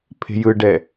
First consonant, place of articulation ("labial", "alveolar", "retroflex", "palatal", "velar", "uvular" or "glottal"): labial